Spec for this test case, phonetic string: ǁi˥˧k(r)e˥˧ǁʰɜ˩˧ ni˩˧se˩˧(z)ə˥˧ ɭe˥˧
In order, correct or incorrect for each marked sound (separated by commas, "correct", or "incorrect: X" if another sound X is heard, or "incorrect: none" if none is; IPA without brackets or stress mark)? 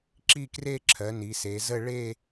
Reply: correct, correct